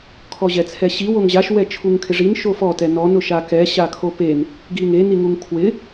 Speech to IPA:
kʰɔʑɛt͡sʰɛɕi woŋʑaʃ wɛt͡ʃʰuŋkʰɪʐin ʃofɔ tɛnɔn ʊʃakɛ ɕakʰopen | ɡiŋe niŋuŋkʰwɪ

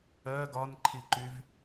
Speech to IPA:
ɜ ɡɒnǃʰiǃyv

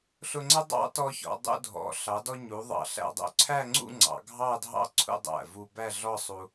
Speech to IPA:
ɬʊ˧ŋ͡ǀə˥ dˤɑ̰˥tɔ˧çɔ̰˩˧dˤṵ˧ dʱɔ̰˩˧ ɬɑ˩˧ dɔ˧ɲu˩˧ ðˤɑ̰˧˩ɬæ̰˧dˤṵ˧ ǀʰæ˥˧ŋ͡ǀṵ˥˧ŋ͡ǀɑ̰˩˧ ɡʱɑ˥˧dʱɑ̰˥ǀʰṵ˥˧dˤæ̰˧˩ vu˧bæ˥˧ɮɔ˥˧ sˤu˧

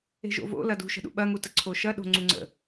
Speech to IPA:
e̤ʒo̰vo̰ lɐdṳʃə̤ɗṵ ɓɐŋu təǀʰoʃɐ ɗo̤ŋ͡ǀuŋ͡ǀə̰

